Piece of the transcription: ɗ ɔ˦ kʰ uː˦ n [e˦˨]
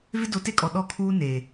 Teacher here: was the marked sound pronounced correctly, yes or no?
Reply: no